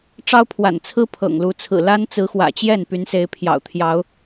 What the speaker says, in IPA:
ʈ͡ʂ ɑ˦ ʊ̯ pʰ w a̰˨˩ n t͡sʰ ɹ̩˦ pʰ ɤ̰˨˩ ŋ l u˨˦ t͡sʰ ɹ̩˨˩ l a˦ n t͡s ɹ̩˨˦ x w ä̰˨˩ t͡ɕ j ɛ˥˨ n p y˨˦ n s e˨˦ ɪ̯ pʰ j ɑ̰˨˩ ʊ̯ t̪ʰ j ɑ˨˦ ʊ̯

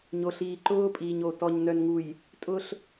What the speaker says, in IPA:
ɲ o˨ ɬ iː˨ ǃ ʊː˦ pʼ iː˨ ɲ o˨ t ɔ˨ ɲ n œ˨ n ŋ u˨ j | tʼ ʊ˦ ɬ

